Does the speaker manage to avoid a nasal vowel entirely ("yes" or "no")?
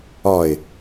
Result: yes